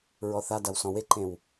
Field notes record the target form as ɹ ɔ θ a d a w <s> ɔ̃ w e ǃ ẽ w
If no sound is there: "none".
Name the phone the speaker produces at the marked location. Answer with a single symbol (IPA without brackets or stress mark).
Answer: s